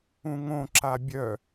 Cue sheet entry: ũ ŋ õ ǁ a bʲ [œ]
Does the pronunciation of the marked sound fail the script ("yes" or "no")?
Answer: no